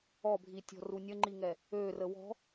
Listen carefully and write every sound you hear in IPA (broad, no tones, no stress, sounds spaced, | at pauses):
ɔ bʱ i tʲ ɔ̤ r u nʲ ə ŋ͡ǃ i ŋ ɛ | ø r ə w ɔ̤